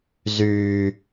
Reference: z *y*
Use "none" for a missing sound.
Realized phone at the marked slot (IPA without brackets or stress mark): y